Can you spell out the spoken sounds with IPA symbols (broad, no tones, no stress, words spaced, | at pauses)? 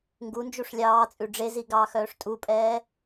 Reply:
ŋɡund͡ʒuʂ lʲɑːt͡sʼʉ ɖ͡ʐezi ɡɑːxœːʂtʼupʼɛː